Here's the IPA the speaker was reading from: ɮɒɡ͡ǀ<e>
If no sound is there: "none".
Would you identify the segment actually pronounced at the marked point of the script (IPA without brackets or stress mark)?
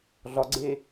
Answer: e